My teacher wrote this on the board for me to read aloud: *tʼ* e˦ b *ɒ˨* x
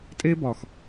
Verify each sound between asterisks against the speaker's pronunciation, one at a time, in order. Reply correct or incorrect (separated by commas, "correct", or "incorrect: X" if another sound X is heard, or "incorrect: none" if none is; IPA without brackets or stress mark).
correct, correct